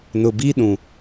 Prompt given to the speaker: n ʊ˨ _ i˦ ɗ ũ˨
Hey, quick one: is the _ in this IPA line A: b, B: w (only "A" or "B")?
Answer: A